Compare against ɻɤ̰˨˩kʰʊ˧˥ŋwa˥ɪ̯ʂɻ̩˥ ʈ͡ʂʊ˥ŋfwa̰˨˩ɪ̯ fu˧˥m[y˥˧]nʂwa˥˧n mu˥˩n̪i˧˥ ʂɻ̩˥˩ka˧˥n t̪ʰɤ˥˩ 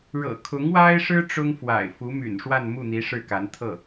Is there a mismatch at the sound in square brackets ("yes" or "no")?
yes